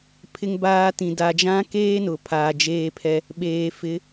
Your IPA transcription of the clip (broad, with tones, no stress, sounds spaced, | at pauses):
pʰ ɪ˦ ŋ b aː˦ t ĩ˨ d a˨ d͡ʒ ã˦ k eː˦ n ʊ˨ pʰ aː˨ d͡ʒ eː˦ pʰ ɛ˦ | ɓ eː˨ f ɪ˨˦